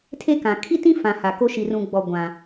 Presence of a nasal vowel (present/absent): present